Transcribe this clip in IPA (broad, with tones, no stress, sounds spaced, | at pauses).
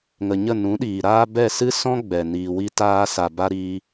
ŋ ə˨ ɲ ə˦˨ n ũ˨˦ ɗ iː˨ ɾ aː˦ b ɛ˦˨ s ɨ˦ s ɔ̃˦ ɡ͡b ɛ˨ n iː˨ w i˧ t aː˧ s a˨ b a˧ ɾ iː˧